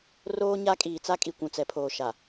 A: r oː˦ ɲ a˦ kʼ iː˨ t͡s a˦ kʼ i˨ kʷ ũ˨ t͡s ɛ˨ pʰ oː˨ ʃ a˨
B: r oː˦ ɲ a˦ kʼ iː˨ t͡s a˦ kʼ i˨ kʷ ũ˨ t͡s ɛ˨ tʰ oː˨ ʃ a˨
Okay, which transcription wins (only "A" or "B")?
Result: A